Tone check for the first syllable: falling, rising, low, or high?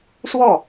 falling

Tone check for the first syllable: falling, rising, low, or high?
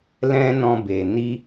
high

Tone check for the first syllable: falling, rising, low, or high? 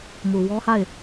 low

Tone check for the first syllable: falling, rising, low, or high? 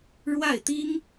falling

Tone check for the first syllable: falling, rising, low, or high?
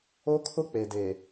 high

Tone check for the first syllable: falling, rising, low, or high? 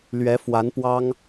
rising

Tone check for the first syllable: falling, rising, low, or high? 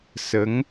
rising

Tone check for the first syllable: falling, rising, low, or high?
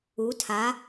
rising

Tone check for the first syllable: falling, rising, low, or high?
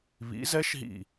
rising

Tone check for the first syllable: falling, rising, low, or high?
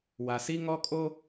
low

